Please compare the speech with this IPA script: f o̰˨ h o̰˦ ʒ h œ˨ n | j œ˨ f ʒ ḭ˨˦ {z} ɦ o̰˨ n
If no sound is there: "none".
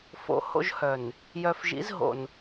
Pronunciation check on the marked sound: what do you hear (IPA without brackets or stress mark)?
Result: z